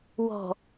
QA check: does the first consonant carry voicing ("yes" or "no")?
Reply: yes